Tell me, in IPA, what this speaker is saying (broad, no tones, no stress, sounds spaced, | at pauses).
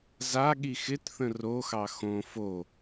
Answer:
z a ɠ i x ɪ t θ ə̃ r o x ɑ x õ f o